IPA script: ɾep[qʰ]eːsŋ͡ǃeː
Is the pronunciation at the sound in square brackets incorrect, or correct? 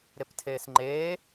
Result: incorrect: tʰ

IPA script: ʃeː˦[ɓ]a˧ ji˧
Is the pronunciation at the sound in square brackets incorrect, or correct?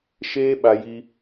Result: correct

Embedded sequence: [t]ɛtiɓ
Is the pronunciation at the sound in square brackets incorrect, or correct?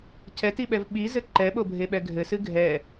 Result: incorrect: cʰ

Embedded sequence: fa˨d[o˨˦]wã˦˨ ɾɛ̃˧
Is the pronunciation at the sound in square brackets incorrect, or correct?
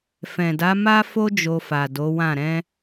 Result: correct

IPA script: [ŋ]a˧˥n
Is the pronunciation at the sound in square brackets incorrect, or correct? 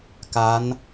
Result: incorrect: k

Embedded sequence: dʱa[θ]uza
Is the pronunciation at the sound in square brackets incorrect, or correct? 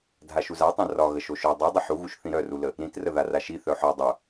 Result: incorrect: ʃ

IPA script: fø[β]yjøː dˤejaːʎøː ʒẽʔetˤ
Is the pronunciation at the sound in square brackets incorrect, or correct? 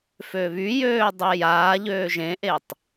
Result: correct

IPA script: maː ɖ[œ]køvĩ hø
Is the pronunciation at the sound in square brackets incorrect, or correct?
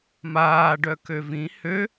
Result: correct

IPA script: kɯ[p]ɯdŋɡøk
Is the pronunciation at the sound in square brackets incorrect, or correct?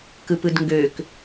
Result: correct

